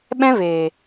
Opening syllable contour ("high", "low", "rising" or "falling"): high